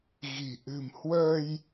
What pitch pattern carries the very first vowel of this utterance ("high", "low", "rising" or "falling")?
low